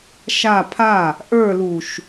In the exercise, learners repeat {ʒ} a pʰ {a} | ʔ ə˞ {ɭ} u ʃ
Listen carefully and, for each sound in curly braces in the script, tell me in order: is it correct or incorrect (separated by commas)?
incorrect, correct, incorrect